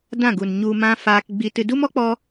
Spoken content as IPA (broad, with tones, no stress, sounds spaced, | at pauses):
d ã˦˨ ɡ u˨ n ɲ u˧ m ã˦ f aː˧ k ɡ͡b i˧ t ɨ˧ d u˦ m ɔ˦ k͡p ɔ˧